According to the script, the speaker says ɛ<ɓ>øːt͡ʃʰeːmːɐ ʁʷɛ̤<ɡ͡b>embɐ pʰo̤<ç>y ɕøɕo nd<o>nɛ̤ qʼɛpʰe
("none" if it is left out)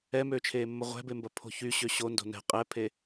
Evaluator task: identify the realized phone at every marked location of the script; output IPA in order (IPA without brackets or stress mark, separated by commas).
m, b, ç, o̤